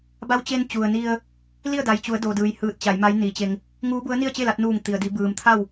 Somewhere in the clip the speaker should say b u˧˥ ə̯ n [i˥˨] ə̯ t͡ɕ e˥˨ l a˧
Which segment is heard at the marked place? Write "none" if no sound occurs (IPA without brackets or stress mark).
i˥˨